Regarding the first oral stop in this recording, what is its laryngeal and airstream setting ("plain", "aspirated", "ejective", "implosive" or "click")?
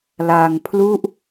aspirated